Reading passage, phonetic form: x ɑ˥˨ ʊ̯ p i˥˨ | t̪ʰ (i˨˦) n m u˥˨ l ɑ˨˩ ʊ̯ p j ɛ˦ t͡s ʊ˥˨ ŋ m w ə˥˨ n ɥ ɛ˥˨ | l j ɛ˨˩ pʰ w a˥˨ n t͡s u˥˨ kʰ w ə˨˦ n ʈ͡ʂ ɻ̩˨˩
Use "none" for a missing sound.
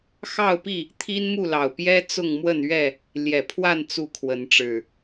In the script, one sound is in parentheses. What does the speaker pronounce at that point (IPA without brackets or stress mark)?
i˦